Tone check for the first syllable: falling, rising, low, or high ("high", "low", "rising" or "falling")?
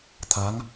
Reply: rising